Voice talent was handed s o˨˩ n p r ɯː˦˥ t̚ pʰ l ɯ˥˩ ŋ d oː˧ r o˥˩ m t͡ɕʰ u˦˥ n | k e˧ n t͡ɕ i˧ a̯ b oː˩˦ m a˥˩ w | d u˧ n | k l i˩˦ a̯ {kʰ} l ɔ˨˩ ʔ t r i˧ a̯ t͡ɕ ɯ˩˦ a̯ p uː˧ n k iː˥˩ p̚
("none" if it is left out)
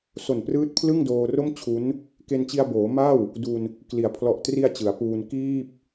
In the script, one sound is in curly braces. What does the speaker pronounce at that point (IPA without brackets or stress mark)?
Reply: pʰ